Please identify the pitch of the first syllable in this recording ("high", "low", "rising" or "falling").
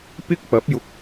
high